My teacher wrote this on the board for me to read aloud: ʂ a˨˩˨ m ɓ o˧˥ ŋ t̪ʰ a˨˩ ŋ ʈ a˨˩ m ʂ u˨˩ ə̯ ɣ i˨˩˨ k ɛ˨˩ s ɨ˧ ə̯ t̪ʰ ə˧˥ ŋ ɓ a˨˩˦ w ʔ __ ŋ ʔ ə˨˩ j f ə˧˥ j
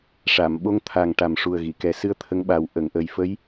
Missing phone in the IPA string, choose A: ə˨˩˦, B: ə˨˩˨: B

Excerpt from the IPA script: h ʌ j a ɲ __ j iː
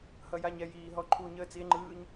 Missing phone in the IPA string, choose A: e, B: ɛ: B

